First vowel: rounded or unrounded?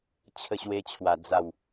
unrounded